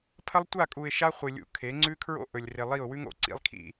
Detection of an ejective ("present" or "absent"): present